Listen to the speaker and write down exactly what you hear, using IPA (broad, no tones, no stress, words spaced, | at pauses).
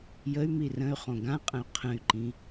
jəy̯mi rə̃y̯χõ ɡãqʼə̃y̯ qʰə̃y̯ǃĩ